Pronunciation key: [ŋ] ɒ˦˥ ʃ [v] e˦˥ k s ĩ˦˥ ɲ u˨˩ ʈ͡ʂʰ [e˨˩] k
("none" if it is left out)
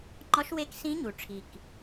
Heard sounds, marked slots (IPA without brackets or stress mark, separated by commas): ŋ͡ǃ, w, i˨˩